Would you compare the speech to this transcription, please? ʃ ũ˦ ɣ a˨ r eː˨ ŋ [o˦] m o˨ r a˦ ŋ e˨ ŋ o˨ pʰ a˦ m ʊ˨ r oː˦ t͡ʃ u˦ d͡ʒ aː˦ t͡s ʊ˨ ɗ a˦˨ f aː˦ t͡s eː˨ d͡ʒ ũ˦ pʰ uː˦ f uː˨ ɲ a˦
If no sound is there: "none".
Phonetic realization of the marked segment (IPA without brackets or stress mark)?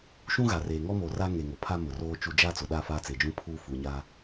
ɔ˦